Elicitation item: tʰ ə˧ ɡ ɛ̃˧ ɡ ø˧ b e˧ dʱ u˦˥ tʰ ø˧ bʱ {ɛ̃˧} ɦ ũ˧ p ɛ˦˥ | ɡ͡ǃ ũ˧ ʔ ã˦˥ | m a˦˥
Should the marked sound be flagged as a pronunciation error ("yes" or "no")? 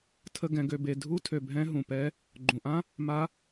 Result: yes